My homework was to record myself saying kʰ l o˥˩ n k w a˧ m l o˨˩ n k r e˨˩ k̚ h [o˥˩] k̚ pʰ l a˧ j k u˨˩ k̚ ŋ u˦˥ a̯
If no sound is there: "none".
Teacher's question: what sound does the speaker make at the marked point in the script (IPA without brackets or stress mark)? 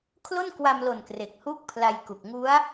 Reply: u˥˩